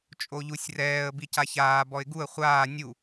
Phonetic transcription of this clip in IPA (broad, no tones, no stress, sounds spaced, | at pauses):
t͡ʃʼ o ʎ u sʲ r ɛː ə̯ b i c a ç aː b ɔ ɪ̯ ɡ u ə̯ χʷ aː nʲ u